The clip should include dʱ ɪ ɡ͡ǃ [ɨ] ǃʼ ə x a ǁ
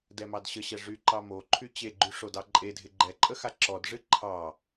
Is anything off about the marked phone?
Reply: yes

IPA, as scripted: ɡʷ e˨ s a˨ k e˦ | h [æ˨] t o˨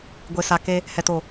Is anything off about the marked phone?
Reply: yes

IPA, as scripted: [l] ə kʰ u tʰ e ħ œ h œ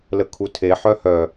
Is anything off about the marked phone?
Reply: no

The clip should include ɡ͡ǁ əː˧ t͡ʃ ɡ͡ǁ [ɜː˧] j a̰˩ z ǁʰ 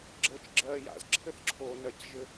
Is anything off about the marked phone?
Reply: no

